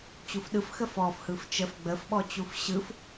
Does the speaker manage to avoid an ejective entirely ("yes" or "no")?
yes